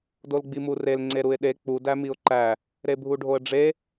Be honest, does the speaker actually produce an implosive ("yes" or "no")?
yes